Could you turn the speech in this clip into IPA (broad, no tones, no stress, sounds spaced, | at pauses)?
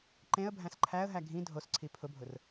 ǃ ẽ ə̯ bʱ æ̃ s ǃʰ æ ə̯ ɦ æ ɡʱ ĩ dʱ o s ǀʰ i pʰ ʊ bʱ ʊ r